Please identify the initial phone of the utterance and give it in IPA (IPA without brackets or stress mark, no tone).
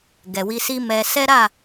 ɡ